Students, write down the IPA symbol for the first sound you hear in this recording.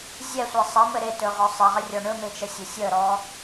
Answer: zʲ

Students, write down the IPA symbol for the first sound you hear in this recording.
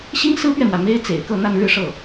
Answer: ɕ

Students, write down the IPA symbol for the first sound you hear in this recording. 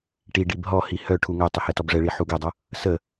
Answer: ʈ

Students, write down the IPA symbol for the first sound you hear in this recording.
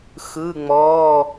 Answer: x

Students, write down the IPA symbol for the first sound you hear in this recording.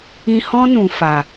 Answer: ĩ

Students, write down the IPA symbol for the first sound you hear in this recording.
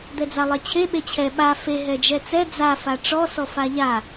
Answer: d̪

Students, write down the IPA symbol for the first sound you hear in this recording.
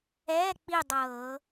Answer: ɛː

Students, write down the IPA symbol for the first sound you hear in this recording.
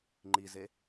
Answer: ŋ͡ǃ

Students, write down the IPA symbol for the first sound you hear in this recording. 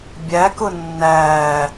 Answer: bʲ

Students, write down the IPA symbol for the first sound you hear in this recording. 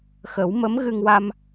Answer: x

